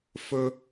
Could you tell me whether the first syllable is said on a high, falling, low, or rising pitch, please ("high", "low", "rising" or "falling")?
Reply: high